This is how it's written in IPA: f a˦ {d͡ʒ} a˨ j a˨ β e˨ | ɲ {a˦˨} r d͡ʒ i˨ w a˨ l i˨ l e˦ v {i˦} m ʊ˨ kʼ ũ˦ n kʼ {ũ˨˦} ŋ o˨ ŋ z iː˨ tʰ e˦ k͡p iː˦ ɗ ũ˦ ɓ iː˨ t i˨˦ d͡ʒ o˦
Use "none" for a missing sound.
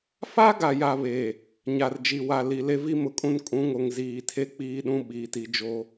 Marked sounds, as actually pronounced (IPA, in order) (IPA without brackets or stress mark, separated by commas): ɡ, a˨, i˦, ũ˨˦